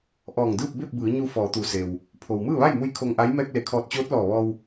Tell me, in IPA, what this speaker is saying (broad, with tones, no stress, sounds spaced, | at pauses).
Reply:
ʔ ɔː˧˩ ŋ d ɯː˥˨ p̚ b e˥˨ p̚ b ɯː˩˧ ɲ u˧ f ɔː˩˧ t̪ u˩ s e˩ w | pʰ o˩ w m ɯː˥˨ ʋ a˥˨ j m u˧˥ j kʰ o˧ ŋ ʔ a˧˥ j m ɛː˧ k̚ l e˩˧ kʰ ɔː˧˩ t̚ t͡ɕ oː˧˥ t̚ l ɔː˧˩ ʋ ɔː˧ w